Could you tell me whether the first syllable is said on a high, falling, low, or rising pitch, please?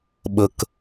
low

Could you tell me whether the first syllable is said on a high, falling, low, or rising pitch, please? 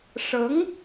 rising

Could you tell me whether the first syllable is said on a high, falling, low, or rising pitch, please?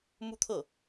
falling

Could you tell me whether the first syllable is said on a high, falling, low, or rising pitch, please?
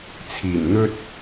low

